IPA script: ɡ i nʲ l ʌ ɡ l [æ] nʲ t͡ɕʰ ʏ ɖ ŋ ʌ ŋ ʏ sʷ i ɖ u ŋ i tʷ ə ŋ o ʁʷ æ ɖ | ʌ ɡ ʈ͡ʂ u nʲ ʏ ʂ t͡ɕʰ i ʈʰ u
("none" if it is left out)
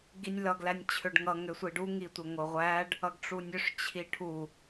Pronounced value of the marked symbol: æ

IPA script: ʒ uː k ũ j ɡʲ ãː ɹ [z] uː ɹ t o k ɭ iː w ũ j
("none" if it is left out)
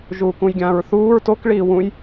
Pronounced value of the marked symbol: θ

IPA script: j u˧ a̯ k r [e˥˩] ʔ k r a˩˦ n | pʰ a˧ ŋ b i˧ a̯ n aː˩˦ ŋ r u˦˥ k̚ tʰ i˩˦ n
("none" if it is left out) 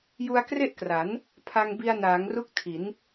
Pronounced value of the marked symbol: e˥˩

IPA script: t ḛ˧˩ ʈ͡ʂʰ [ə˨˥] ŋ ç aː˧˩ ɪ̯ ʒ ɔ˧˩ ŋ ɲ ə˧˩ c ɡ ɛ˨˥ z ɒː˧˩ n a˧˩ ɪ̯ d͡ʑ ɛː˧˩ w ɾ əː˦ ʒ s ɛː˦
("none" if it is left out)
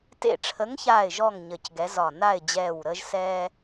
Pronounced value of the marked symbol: ə˨˥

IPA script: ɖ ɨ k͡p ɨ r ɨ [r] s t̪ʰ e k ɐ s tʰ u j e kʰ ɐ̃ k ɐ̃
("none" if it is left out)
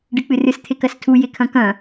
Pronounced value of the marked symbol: none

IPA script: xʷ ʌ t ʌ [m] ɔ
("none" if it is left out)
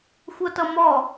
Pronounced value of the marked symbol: m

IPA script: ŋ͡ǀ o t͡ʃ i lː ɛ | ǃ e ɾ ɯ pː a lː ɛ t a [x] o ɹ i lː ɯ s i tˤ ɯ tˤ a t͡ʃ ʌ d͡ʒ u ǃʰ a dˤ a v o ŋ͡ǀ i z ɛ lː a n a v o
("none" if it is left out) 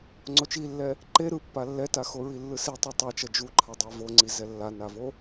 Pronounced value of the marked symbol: x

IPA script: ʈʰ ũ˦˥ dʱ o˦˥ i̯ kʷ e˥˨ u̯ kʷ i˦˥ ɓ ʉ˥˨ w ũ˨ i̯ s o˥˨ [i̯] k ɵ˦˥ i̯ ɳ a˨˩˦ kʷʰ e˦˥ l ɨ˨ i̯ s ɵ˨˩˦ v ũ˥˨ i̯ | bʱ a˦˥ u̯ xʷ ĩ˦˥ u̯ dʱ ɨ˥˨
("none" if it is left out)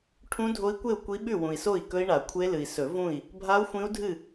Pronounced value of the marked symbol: i̯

